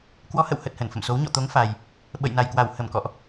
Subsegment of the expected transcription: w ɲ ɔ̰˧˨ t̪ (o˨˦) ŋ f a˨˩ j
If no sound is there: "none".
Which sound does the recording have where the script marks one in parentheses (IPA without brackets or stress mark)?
o˨˦